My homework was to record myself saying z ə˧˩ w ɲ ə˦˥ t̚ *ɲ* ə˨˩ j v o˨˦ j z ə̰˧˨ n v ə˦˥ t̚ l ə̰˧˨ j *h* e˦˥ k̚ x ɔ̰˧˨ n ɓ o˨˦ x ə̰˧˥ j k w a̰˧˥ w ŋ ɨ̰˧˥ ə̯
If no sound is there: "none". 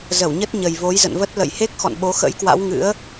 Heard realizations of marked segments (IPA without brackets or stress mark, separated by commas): ɲ, h